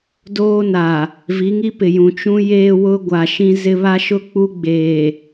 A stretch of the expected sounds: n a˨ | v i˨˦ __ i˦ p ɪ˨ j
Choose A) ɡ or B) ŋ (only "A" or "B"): B